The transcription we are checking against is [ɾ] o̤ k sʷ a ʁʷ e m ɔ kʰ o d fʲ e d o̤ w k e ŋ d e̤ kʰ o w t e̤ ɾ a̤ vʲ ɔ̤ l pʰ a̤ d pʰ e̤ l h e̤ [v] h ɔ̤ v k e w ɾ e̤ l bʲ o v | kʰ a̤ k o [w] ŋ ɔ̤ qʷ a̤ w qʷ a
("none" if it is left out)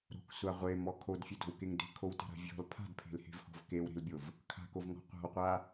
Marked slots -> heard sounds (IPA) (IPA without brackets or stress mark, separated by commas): ɾ, v, v